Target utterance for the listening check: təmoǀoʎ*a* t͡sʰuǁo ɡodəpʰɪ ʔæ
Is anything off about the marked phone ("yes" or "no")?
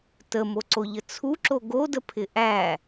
yes